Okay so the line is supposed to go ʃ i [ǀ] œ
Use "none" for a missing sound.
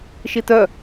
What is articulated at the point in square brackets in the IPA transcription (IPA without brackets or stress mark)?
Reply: t